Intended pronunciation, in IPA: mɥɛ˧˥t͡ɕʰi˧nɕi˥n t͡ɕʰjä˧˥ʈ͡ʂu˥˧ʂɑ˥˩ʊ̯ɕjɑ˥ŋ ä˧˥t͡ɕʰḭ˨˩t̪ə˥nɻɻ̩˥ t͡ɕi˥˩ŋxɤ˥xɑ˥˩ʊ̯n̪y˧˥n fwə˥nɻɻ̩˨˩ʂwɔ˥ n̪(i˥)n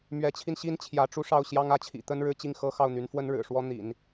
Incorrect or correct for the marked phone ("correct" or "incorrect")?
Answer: incorrect